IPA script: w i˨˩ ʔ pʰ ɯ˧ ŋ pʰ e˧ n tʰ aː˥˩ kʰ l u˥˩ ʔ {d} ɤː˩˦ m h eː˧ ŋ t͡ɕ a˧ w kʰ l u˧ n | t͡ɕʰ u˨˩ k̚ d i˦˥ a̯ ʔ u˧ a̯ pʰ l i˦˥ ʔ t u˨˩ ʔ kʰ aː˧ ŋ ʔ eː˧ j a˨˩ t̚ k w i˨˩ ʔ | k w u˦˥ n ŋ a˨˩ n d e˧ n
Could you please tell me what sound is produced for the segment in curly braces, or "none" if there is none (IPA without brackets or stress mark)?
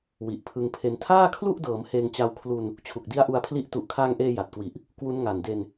d